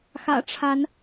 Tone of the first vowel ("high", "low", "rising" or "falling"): low